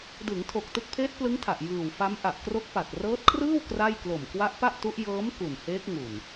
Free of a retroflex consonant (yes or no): yes